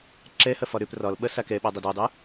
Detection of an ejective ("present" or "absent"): absent